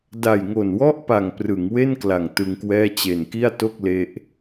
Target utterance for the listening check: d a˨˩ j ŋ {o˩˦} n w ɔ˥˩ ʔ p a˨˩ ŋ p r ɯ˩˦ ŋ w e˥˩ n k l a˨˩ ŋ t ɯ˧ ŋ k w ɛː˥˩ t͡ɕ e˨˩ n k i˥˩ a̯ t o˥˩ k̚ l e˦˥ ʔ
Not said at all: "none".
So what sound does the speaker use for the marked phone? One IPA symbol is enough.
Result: o˨˩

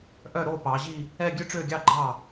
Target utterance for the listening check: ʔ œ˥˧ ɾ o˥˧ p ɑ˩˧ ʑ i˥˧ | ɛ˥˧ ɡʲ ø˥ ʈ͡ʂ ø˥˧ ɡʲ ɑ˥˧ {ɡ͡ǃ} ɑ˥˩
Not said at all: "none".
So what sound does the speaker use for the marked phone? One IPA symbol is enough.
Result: ɡ͡ǃ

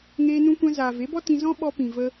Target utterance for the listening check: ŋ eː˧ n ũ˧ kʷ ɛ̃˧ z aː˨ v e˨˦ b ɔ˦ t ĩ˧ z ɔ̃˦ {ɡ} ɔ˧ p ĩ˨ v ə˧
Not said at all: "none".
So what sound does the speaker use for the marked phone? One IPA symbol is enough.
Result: ɓ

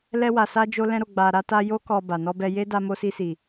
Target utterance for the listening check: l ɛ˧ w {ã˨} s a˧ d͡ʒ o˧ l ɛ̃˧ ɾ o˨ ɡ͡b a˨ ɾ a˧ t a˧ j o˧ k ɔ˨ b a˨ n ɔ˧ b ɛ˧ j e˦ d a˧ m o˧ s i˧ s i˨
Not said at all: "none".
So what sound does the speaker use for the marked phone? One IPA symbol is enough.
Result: a˨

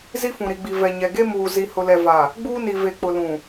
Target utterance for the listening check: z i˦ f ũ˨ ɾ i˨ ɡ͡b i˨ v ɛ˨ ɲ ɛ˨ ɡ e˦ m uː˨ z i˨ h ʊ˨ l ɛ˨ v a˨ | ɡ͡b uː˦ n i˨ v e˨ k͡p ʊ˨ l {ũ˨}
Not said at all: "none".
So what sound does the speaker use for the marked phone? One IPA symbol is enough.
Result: ũ˨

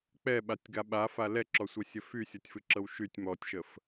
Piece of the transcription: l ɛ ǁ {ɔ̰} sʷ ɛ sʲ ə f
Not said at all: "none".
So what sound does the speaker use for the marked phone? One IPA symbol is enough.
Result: ɔ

